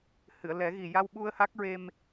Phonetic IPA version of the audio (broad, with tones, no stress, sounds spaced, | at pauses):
h ɨ˨˩˨ ə̯ l ɛ˨˩˦ ɣ i˨˩ j a˧ w ɓ u˧ ə̯ h a˦˥ k̚ ɹ e˧ m